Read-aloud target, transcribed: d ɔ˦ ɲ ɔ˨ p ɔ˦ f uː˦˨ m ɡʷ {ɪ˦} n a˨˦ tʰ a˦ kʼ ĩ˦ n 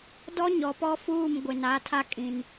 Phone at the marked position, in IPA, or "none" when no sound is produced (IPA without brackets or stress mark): ɪ˨